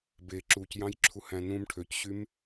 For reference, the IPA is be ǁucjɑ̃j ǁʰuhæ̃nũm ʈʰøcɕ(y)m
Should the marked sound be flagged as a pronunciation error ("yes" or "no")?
no